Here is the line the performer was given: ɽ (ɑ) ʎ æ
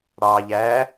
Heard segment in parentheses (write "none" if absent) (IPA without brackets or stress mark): ɑ